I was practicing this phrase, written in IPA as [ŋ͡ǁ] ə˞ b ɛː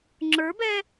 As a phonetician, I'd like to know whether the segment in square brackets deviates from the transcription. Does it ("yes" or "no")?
no